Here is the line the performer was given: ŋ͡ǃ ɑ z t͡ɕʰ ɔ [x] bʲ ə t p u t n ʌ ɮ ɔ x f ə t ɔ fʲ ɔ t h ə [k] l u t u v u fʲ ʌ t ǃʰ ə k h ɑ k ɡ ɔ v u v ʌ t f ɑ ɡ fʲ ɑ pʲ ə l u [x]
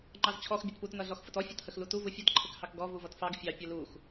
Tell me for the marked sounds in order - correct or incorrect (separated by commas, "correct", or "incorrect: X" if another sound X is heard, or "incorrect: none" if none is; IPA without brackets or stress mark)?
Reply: correct, incorrect: x, correct